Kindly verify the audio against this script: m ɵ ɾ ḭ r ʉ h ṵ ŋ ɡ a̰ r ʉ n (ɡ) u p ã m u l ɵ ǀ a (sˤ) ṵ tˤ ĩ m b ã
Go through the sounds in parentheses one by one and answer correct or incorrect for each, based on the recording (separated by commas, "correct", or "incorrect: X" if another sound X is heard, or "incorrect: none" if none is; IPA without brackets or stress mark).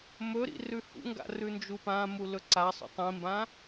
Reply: incorrect: d͡ʒ, correct